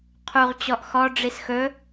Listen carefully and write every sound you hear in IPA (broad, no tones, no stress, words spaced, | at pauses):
qʰuʁt͡ɕɔʔ xɔɖ͡ʐis xɵ